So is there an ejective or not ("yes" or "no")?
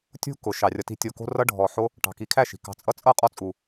yes